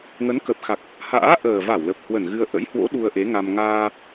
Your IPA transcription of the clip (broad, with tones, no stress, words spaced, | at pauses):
ŋə˨˦nkə˨˩p̚xa˨˩k̚ | ha̰ː˧˥ ʔəː˨˩va˧˩wlə˨˩p̚ hwə˧˩nɣɨ˧ə̯ ʔə̰˧˥jhwo̰˧˥ ɗu˧ə̯ʔe˨˦ŋa˧m ŋaː˧